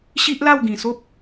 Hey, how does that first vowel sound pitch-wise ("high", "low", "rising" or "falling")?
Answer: high